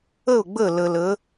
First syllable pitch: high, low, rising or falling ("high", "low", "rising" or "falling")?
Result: falling